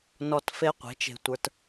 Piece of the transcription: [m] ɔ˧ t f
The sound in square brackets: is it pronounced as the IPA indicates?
no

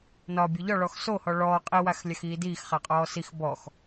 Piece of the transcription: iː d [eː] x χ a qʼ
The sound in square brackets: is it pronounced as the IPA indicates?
no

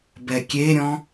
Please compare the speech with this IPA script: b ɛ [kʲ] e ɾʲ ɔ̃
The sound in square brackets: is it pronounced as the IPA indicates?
yes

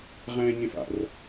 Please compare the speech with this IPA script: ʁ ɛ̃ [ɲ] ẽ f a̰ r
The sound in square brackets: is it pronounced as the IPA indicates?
yes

